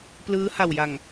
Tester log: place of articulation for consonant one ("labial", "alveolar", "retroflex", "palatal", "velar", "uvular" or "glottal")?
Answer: labial